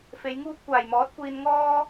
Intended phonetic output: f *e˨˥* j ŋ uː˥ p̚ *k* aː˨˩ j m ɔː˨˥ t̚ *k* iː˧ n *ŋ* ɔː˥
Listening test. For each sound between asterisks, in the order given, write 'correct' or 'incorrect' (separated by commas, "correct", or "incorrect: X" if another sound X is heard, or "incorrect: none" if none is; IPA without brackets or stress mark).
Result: incorrect: e˨˧, incorrect: kʷ, incorrect: kʷ, correct